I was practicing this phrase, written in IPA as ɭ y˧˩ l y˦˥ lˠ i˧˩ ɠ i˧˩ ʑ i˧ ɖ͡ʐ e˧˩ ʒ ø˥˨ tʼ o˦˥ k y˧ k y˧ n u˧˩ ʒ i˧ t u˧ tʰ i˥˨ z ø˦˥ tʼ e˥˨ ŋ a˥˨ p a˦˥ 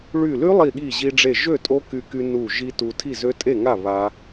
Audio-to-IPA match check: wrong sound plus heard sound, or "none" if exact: p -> β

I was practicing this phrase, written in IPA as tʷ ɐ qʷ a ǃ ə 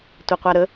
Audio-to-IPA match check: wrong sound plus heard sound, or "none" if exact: ǃ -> ɾ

